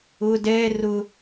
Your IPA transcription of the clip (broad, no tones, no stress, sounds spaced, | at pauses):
ʊ d ɛ r ʊ